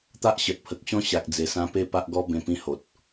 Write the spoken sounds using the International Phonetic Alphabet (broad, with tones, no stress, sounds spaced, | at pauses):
t̪ a˦ ʔ ɕ ə˨ t̚ pʰ ə˨ k̚ ɕ ɔ̃˦ ɕ a˨ k̚ d͡z e˨˩ s ã˧ p e˥˧ p a˦ ʔ ɡ ɔ˦ b ẽ˧ p ĩ˧ h o˨ t̚